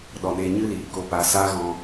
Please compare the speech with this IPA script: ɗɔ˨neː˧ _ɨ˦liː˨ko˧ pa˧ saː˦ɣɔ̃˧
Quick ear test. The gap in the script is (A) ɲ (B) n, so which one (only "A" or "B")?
A